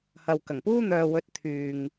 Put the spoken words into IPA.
hɐ˨wkɐ˨˩ŋpuː˥n̪œː˨ wɵ˧t̚t̪ʰyː˨ŋ

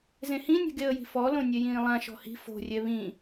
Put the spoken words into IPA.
zẽhĩnʲɛ̤ɡ eə̯ji̤fɔlõ nʲɛjĩːlˠãʃɔ̤ hi̤ fo̤rʲɛ βĩ

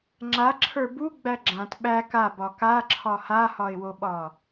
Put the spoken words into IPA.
ŋ͡ǁaǁʰə˞ buɡ͡bæ ɡ͡ǁãt ɓæ kabɒ kaǁʰɒ hahɒɪ̯woɓɒ

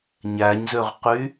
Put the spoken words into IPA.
ɲæɲzøʁqy

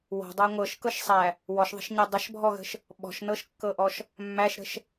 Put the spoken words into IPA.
wɔ̤dˤa ŋʷɤʃkɤʃsˤæ | wɔʃðˤə̤ʃɲæ dˤəʃbʱɔɣə̤ʃ | ɓɔ̤ʃnɤʃkːɤʔɔʃ | mːæʃɾə̤ʃ

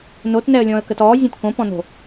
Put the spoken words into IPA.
notnɛə̯lʲɔ̃ə̯kət ɔːzʲɔ̃t kõpɔ̃no̤

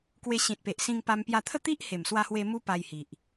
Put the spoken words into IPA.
kwe˧ɕĩ˨t̚pe˨ʔ sĩ˧ŋpa˧m pja˧t̪ʰə˥˧ t̪i˦ʔhe˨˩mswa˧hwe˧ mu˦pa˧jhi˨ʔ

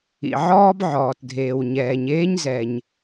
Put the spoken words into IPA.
ḭ˩ʕɔː˥bʕɔː˩tdʱeː˩w ɲɛː˩ɲ eː˥ɲzɛ˩ɲ

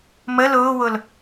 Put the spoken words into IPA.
mə lʊːwʊl

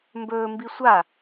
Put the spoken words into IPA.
mbɵː mbisʷa

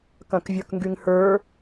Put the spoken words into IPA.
kɐ̃kvʲə˞kŋɡyŋhə˞

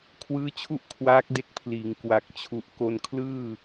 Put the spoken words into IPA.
kʰwɯː˦˥t͡ɕʰu˥˩ʔ kʰwaː˦˥k̚de˦˥k̚pʰliː˩˦ŋ kwa˨˩k̚t͡ɕʰu˨˩ʔ ko˧nkʰlɯː˥˩

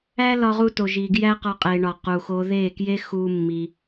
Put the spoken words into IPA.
æ˦lɒ˧ʁu˧to˨ ʒi˨ɡjæ˦qɒ˧qʼe˨ ɳɒ˨ qu˨xo˧ ðe˦˨kje˦ xu˦mːi˧

